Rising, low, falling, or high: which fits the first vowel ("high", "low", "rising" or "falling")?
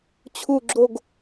falling